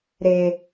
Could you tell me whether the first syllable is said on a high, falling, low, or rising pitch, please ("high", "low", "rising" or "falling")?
low